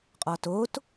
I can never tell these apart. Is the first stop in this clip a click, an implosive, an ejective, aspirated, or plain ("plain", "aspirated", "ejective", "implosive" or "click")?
ejective